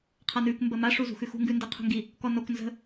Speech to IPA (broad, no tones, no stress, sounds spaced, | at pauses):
qʰ a n ʉ k m b ə m a ʂ u z ṳ x ʉ x ṳ ŋ ɡ ʉ n d i qʰ ṳ ŋ ɡ i | k ɔ n o k n z ə̤